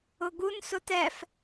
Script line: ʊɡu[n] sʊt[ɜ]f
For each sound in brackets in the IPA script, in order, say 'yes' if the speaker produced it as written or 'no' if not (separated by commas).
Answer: yes, no